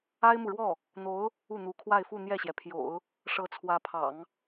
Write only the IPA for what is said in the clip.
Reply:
a˥ ɪ̯ m u˨ ɻ w ɔ˥˩ | n̪ o˧˥ ʊ̯ | u˥˩ n̪ u˧˥ kʰ w a˥˧ ɪ̯ f u˥˧ n̪ j ɛ˥˩ ɕ j ɛ˩ pʰ j o̰˨˩˦ ʊ̯ | ʂ ɤ˧˥ t͡sʰ w ä˧˥ pʰ ɑ̰˨˩˦ ŋ

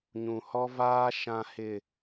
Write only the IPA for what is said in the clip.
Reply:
ɲ ũ˨ h ɔ˦ v aː˦ ʃ ã˨ h ɪ˨

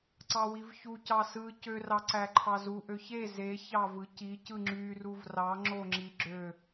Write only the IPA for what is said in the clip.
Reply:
ǀ ɑ w i v ç u c ɑ s ɯ c ø r ɑ ǀ æ ǃʰ ɑ z u ʔ ø ç e z e ç ɑ v ɯ c i c ɯ ŋ͡ǁ y r u v r ɑ ŋ͡ǁ o ŋ͡ǁ i ɡ͡ǁ ø

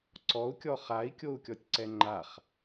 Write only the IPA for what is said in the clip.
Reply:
ǀ ɔ u̯ kʲ ɔ χ a i̯ kʲ o u̯ kʲ ɔ tʲ ǀ ɛ ŋ͡ǃ a χ

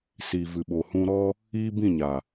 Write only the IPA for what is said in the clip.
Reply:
s i˨ v ɨ˨ ɓ o˨ h ũ˧ ɾ ɔ˦ | iː˦ b ĩ˦˨ ɲ a˨

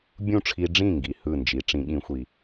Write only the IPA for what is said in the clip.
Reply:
bʲ ũ˥˩ ʈ͡ʂʰ i˧ ɖ͡ʐ ĩ˥˩ ŋ ɡ i˩ h ɯ˥˩ n d͡ʒ i˩˥ ʈ͡ʂ ĩ˩˥ ɠ ĩ˩˥ xʷ i˩

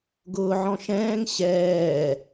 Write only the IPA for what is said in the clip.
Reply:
ɡ ʊː ʕ ɔ̃ ʃ ɛ̃ː ŋ ɕ ɛː

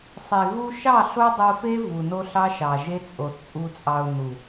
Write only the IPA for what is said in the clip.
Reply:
sˤ e˨ ɣ u˧ ʃ ɑ˦˨ ɬ o˦ dˤ o˧ f e˦ v u˨ n o˦ ɬ ɑ˦ ʃ ɑ˨ ʒ e˦ t͡sʼ o˨ θ pʼ u˨ t͡sʼ ɑ˨ ʊ̯ n u˨

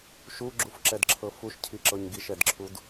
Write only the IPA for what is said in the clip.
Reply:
ʃ u ɡ͡ǁ u f ǁ ɛ d ǁʰ ɤ f u ʃ cʰ i ǁ ɤ ɲ ɡ i ʃ ɛ d ǁʰ u d

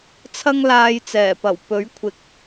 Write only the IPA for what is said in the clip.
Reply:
t͡sʰ ɐ˥ ŋ l aː˧ j t͡s ɛː˨˩ p ɐ˨˩ w p ɵ˨˥ ɥ kʷʰ ɪ˨˥ k̚

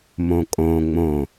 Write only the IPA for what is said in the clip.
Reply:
m õ kʼ õ ŋ͡m õ

